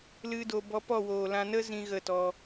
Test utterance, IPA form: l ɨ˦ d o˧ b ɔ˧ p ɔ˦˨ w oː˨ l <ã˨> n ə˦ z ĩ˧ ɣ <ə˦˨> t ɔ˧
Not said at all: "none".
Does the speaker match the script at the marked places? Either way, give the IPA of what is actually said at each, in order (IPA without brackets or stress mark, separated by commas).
ã˧, ə˦˨